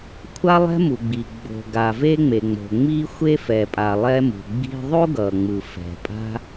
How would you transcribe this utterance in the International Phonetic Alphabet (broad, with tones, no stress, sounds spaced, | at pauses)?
kʷʰ a˥ lˠ ɛ̤˥ m u˩ ɡ͡b i˩ ɡ͡b o̤˩ ɡ a˩ v e˧ ŋ͡m e˩ ŋ͡m o̤˩ ŋ͡m i˥ xʷ e˥ f ɛ˩ pʼ a˩ lˠ ɛ˧ m ṳ˩ ɡ͡b i̤˧ ðˤ o˥ ɡ ʌ˩ ŋ͡m ɯ˩ f ɛ̤˩ pʼ a̤˥